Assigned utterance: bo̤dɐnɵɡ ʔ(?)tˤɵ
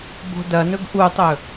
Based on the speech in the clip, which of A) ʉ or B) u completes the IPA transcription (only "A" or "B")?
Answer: B